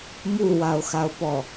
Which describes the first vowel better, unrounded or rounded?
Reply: rounded